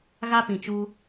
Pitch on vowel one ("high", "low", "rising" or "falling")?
high